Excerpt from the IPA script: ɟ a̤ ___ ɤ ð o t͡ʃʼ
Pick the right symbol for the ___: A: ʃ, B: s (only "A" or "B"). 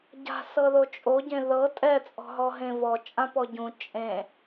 B